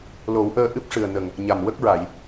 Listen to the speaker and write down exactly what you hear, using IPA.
lo˨˩˦wʔəː˧ ʔɨ˦˥p̚ʂɨ˨˩ə̯ nə˨˩ŋ | ɲa˨˩mwə˦˥k̚ɹa˨˩˨j

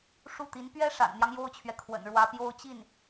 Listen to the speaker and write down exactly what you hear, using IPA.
ʂu˥˩t̪i˧˥n pɥɛ˥ʂa̰˨˩nn̪jɑ˦ŋ jo˥ʊ̯t͡ɕʰɥɛ˨kʰwə̰˨˩n ɻwä˧˥pjo˥ʊ̯t͡ɕi˥˩n

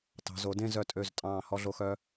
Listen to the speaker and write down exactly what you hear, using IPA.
tɑ̤˩˧zo˩˧dẽ˥˧ zœ˧˩tʼø˧˩z tʼɑ̃ː˧˩ hɔ˧ɮo˧xœ˧

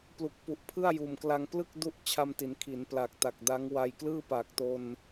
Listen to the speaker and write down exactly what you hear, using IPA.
plu˨˩k̚pu˨˩ʔpʰɯ˥˩a̯ juː˨˩mkla˧ŋ plɯ˥˩k̚ du˥˩ʔ t͡ɕʰa˧mti˩˦n kʰi˩˦npla˨˩k̚ ta˨˩k̚da˦˥ŋwa˧j klɯː˥˩paː˨˩k̚to˧n

